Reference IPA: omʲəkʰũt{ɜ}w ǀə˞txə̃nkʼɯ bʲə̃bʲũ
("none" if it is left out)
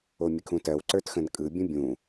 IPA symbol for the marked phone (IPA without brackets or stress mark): ɜ